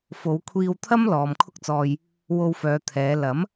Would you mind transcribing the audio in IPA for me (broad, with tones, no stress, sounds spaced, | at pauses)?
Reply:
f o˨˧ w kʷʰ iː˧ w t̪ʰ ɐ˥ m l ɔː˨ m kʰ ʊ˥ k̚ t͡s ɔː˧ j | w o˧ w f œː˨˧ t̪ʰ ɛː˨˧ l ɐ˨˥ m